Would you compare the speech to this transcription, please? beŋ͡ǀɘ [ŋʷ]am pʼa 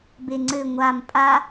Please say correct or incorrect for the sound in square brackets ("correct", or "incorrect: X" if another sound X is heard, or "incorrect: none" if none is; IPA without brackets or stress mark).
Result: correct